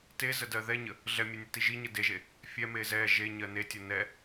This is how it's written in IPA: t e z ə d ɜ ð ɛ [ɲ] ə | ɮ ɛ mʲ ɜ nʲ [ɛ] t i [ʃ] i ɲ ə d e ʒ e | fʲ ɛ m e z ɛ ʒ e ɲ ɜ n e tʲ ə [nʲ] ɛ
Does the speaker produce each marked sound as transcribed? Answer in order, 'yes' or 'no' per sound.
yes, yes, no, no

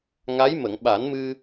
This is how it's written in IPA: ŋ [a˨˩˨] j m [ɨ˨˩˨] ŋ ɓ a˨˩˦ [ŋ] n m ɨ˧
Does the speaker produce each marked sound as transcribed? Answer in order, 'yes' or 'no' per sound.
no, no, no

